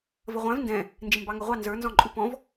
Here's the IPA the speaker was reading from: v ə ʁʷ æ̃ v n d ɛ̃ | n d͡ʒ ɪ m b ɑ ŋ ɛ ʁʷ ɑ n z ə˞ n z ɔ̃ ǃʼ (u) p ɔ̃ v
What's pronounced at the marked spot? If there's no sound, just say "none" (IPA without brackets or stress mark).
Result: u